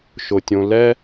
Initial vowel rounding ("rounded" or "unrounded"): rounded